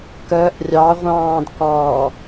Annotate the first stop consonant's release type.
plain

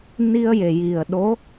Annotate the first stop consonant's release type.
implosive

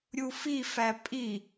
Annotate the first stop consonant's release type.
ejective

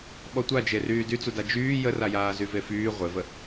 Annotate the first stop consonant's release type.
implosive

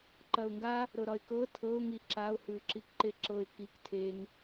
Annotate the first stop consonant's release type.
click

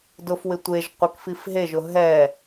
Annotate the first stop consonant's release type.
plain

